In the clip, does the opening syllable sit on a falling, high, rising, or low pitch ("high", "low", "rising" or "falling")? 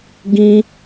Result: high